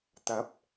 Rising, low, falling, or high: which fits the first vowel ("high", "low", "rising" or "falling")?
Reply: rising